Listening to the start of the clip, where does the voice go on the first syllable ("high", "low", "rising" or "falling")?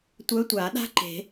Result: rising